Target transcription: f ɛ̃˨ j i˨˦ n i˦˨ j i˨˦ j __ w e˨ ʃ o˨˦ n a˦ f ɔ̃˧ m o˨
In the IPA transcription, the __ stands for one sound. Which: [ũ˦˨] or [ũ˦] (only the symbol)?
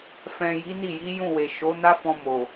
ũ˦˨